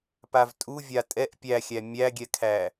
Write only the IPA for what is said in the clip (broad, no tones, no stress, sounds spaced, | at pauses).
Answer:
p a v tʼ u vʲ a tʼ ɛ ʔ pʲ æ xʲ æ mʲ æ ɡʲ ɛ kʰ æ